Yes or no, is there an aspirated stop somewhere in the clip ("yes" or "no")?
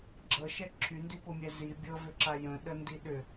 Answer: yes